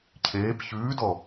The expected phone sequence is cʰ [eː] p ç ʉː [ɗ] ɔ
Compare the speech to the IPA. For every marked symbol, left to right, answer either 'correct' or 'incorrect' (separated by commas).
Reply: correct, incorrect